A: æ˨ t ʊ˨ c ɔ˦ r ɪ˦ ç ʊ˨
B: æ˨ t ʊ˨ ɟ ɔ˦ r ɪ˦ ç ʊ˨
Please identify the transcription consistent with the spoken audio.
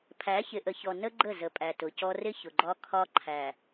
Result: A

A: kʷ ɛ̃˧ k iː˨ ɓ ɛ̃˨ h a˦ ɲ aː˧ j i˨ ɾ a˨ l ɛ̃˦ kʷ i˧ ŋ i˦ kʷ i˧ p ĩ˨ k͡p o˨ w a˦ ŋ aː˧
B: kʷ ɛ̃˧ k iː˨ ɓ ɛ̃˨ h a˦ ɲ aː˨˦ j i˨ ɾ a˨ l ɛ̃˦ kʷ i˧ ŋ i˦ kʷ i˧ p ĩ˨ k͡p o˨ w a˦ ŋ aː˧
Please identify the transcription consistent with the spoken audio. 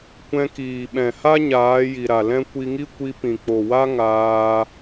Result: B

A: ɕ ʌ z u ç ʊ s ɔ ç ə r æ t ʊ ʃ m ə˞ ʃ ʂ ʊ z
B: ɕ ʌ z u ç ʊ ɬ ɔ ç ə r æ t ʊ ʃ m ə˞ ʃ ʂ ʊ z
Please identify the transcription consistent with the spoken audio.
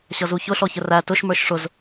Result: B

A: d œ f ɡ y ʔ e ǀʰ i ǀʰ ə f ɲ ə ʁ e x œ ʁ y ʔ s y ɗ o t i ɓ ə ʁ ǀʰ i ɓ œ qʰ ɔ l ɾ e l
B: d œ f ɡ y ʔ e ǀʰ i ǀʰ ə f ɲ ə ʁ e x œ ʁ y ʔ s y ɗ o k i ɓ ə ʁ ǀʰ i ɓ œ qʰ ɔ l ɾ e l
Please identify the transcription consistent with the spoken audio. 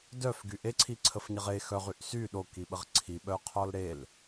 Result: B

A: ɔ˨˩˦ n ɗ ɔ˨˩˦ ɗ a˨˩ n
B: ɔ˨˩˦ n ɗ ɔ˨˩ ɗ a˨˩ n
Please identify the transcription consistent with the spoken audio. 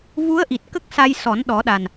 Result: A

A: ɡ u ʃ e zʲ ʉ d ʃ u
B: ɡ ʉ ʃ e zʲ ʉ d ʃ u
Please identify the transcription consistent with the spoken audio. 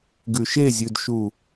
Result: B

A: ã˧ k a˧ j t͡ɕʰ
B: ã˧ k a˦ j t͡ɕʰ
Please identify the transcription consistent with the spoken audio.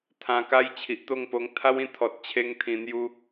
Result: B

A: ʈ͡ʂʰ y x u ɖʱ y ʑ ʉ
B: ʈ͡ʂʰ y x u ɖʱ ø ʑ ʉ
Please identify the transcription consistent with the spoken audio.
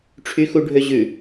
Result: B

